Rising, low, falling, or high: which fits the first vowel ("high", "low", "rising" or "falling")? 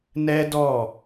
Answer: high